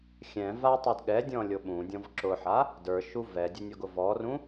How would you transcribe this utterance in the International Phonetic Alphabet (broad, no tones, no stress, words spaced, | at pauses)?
xʲɛ̃ vatˤud ɠɛdʲɔ̃lʲo ɓũdʲɔ̃v ǁʊħa | də˞ʃu vɛdʲʊnʲɔɡʊ vɔrũ